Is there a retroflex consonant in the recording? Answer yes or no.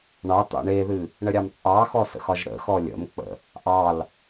yes